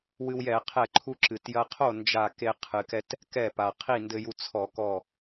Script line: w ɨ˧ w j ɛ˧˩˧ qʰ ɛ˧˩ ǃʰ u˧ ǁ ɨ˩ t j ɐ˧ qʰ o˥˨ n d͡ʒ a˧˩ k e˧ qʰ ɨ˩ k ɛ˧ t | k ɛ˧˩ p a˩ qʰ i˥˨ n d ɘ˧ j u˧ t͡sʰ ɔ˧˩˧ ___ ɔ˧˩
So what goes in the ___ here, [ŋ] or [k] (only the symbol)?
k